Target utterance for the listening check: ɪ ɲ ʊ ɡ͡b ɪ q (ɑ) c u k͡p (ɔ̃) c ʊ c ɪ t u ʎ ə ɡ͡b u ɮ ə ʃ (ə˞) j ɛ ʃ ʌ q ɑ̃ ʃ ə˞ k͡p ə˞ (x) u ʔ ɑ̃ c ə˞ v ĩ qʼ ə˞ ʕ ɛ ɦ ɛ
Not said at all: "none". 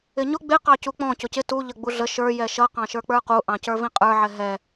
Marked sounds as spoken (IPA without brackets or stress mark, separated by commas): ɑ, ɔ̃, ə˞, q